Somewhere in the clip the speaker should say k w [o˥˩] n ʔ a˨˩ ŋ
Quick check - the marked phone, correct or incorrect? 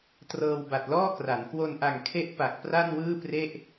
incorrect